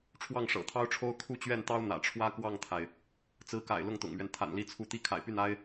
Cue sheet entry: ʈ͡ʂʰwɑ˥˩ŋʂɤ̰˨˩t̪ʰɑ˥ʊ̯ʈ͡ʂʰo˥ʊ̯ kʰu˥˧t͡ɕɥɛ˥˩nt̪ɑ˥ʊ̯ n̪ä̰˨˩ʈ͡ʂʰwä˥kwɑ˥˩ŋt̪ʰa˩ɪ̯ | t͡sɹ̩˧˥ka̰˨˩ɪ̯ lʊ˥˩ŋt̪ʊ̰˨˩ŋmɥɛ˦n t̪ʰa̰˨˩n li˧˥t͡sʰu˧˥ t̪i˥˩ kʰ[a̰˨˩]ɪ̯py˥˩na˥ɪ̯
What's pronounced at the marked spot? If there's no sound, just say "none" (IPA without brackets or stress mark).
a̰˨˩